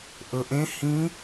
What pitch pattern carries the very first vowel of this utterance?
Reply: low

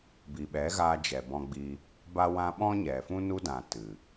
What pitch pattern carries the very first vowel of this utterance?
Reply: low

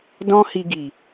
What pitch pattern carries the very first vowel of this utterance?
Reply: high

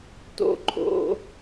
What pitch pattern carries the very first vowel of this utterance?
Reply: low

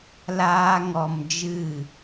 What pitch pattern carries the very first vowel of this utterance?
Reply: high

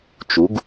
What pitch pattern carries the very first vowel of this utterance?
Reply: rising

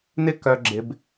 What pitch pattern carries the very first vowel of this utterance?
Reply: high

